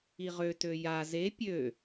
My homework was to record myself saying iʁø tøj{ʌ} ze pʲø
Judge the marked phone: incorrect: a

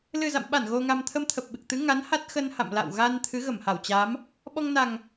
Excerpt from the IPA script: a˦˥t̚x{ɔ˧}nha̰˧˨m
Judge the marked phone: incorrect: ə˧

